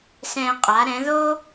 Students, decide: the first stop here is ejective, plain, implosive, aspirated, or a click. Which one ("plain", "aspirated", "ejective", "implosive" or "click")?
ejective